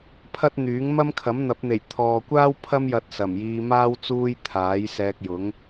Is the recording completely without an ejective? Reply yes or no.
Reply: yes